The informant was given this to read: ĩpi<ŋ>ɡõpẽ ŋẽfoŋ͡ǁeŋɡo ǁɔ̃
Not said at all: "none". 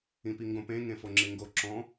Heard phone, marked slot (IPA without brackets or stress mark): ŋ